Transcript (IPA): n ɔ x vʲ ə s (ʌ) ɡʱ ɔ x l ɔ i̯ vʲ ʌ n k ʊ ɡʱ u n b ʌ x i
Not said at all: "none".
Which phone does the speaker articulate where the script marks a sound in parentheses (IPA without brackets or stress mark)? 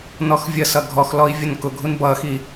ʌ